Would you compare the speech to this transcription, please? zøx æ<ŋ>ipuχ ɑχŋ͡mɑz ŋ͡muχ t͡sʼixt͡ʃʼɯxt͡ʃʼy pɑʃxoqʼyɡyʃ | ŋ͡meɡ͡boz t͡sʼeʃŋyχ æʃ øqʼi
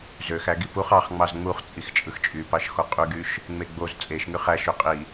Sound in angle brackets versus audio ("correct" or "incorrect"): incorrect